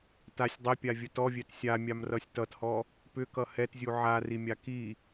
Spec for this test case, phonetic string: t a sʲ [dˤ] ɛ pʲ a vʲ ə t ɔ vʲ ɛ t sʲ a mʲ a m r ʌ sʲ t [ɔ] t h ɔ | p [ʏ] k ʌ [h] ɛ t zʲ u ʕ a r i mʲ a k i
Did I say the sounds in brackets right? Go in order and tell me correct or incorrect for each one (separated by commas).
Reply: correct, incorrect, correct, correct